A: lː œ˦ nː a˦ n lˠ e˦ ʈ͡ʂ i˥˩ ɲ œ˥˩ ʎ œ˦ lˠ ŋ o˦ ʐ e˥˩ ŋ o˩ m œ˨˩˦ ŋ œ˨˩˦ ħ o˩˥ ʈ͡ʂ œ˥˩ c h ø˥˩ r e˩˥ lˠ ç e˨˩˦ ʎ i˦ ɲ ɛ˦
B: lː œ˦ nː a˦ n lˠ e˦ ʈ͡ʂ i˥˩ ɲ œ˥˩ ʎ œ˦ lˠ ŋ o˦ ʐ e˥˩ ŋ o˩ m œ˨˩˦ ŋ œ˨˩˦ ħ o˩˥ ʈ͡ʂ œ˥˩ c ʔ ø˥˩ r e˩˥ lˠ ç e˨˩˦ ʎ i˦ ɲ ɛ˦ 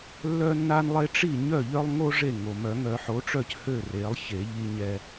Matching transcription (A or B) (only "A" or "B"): A